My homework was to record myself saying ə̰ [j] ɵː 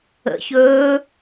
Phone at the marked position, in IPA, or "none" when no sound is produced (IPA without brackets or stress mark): ç